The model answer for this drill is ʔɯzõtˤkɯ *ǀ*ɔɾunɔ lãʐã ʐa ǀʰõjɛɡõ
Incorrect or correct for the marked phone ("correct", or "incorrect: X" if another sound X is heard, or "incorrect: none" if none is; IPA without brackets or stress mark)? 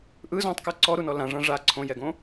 correct